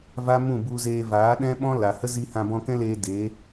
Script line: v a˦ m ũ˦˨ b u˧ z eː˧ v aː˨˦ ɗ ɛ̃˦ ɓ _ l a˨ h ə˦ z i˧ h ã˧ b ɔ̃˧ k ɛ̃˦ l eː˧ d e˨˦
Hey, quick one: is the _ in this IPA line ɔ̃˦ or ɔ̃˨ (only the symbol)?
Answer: ɔ̃˦